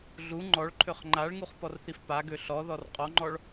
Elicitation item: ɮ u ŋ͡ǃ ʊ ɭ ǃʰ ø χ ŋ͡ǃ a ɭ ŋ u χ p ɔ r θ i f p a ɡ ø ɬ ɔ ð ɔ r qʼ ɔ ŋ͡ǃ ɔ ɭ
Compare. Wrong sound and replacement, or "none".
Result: ʊ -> ɔ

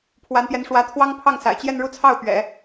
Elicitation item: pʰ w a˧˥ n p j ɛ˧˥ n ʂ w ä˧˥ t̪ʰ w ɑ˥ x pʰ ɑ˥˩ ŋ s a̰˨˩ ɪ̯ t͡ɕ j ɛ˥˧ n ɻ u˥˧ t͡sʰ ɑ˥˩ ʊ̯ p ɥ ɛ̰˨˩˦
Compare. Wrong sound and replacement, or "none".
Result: x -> ŋ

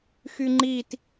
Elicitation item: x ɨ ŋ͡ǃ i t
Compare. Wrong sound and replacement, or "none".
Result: ɨ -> y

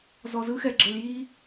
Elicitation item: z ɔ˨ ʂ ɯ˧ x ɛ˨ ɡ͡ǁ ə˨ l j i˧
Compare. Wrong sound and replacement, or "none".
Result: ʂ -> z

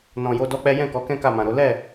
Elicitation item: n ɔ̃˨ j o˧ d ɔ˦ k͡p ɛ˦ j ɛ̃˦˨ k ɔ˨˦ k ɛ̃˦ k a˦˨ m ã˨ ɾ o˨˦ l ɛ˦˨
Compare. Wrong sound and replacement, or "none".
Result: none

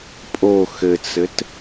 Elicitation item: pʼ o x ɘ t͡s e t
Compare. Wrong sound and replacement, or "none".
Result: e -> ɘ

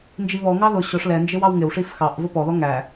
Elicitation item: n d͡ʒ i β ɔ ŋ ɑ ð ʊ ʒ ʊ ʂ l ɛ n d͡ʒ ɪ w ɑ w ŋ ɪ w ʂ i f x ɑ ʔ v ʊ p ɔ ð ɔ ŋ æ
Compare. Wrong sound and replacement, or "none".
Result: ʒ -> ɕ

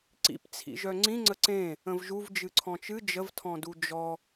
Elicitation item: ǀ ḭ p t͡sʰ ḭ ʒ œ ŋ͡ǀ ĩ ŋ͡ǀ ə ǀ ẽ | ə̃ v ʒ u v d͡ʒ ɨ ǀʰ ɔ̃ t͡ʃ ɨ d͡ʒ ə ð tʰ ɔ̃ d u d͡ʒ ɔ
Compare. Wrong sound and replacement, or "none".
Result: ð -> v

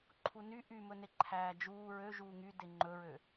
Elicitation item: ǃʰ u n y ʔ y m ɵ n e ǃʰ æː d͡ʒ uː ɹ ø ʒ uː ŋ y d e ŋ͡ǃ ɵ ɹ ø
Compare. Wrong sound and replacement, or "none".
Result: none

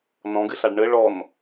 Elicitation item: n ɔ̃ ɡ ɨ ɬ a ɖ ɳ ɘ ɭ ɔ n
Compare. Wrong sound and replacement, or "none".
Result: none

